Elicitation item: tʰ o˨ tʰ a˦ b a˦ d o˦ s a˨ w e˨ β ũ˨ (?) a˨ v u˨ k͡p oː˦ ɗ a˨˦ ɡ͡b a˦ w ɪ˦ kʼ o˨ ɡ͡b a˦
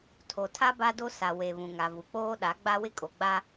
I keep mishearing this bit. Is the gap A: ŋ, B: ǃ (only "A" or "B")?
A